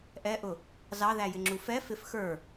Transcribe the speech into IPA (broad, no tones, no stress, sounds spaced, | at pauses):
ʔ ɛ ʔ ʊ | z ɑ ð æ j ɪ ŋ͡ǁ u f ɛ f ɪ f x ə˞